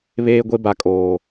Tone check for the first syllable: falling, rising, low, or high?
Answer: high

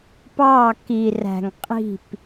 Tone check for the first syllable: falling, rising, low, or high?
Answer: falling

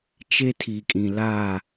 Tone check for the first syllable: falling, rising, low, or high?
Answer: high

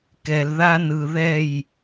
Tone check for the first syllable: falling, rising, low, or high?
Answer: low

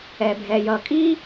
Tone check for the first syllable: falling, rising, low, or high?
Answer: low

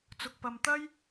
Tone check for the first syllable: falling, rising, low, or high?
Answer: low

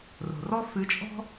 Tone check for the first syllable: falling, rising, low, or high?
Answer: low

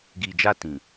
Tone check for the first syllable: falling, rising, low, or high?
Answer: low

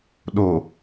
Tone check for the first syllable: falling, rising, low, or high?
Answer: low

